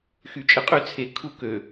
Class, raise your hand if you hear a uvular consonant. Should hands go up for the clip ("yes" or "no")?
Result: yes